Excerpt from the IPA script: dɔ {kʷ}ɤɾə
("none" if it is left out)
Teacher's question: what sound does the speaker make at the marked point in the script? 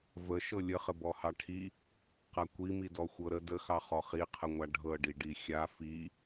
xʷ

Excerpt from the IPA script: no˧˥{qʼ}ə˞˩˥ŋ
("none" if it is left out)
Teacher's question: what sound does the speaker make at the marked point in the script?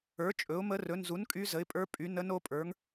pʼ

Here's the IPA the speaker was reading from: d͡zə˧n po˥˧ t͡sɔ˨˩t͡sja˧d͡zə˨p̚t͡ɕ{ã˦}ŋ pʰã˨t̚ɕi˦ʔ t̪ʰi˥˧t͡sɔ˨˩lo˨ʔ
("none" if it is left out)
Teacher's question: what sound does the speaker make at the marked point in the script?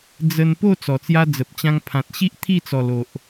ã˧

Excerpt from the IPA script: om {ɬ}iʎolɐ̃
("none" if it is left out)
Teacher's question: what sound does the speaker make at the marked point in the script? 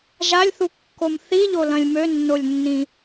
θ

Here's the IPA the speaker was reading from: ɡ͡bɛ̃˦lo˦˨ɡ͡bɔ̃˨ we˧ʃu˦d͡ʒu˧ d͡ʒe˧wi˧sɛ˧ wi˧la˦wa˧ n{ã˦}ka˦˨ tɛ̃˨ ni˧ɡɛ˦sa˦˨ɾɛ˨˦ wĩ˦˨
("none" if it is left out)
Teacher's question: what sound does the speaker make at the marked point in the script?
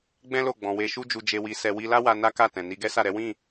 a˦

